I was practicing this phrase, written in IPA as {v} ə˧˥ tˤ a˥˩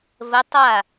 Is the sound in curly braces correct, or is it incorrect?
correct